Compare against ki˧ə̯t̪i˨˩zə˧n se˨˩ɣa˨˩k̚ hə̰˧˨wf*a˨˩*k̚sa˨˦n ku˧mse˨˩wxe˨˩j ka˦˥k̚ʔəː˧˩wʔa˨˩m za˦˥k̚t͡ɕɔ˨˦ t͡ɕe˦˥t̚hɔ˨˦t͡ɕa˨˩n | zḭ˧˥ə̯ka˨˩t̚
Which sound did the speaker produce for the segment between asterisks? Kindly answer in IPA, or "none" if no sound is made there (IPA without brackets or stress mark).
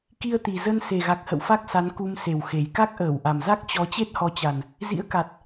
a˦˥